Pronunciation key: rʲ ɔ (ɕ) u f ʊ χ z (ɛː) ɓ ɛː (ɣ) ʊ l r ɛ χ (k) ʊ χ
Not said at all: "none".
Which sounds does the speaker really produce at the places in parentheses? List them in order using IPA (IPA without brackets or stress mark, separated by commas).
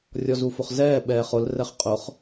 z, ɛː, χ, qʼ